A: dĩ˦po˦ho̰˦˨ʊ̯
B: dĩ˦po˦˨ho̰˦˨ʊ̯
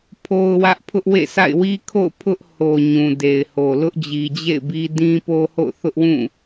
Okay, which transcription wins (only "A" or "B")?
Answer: A